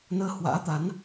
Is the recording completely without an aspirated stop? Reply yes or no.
yes